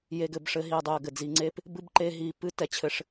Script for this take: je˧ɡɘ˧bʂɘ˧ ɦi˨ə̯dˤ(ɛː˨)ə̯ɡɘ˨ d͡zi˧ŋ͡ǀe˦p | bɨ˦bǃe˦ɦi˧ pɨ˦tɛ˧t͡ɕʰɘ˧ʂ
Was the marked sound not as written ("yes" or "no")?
yes